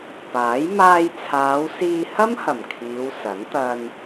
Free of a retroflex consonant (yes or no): yes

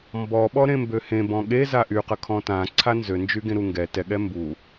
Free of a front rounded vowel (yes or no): no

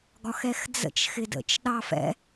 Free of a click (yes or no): yes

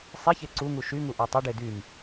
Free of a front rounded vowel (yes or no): no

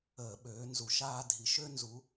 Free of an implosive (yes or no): no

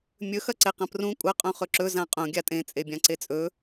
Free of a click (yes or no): no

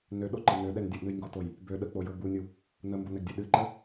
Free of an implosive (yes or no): no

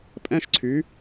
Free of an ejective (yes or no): no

